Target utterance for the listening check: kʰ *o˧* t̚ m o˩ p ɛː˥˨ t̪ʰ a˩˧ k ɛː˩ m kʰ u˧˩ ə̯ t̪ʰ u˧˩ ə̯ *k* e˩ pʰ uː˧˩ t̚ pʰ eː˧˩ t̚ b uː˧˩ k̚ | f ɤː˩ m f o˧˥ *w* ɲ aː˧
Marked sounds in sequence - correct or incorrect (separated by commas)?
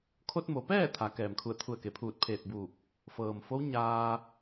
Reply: correct, correct, correct